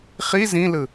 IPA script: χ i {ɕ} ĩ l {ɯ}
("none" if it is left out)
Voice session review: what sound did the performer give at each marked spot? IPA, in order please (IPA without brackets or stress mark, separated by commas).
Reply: z, ɯ